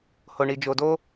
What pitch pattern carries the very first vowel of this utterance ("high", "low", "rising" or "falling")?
low